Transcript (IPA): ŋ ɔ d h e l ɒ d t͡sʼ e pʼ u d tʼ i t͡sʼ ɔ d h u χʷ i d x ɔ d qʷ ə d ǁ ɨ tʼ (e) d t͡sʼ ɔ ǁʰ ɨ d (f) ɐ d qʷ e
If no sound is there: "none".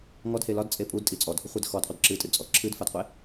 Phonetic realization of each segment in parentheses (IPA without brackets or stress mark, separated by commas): ɨ, f